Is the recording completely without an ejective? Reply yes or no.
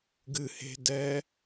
yes